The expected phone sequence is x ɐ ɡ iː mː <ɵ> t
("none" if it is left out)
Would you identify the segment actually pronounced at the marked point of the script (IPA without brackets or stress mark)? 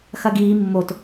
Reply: o